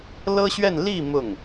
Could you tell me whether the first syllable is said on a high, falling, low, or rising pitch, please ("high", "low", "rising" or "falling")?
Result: high